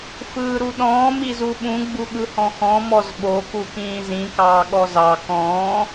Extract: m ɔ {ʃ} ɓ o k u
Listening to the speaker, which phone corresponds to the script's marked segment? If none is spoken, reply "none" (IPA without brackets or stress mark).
z